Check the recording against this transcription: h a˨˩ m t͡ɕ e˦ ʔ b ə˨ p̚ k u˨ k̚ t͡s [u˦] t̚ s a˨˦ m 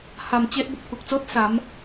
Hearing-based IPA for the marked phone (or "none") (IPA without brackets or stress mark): o˦